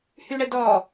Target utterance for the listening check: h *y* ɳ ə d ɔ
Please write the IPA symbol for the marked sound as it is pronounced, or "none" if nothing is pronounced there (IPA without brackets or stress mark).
y